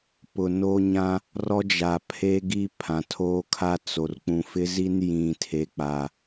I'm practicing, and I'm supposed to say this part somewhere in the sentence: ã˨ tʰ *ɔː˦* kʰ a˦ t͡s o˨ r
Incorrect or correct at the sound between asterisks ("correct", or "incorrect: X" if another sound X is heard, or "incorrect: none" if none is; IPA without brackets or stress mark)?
incorrect: oː˦